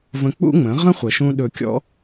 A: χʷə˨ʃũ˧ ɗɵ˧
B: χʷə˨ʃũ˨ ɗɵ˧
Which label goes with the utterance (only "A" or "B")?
A